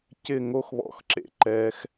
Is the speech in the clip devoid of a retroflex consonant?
yes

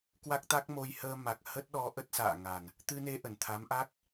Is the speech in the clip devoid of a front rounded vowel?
yes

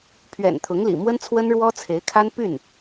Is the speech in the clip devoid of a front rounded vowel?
no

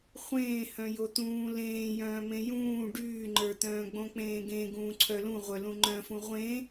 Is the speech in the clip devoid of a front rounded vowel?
no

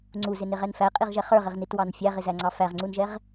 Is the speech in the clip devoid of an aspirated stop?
yes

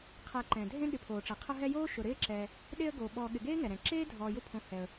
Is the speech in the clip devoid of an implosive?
no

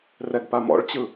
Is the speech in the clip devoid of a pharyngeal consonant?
yes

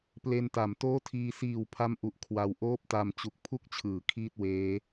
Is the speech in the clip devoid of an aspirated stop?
no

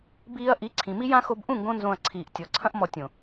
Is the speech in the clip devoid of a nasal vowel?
no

